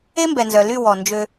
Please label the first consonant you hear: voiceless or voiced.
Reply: voiced